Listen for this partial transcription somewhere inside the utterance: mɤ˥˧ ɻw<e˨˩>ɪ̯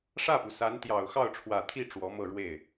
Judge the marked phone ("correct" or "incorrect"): incorrect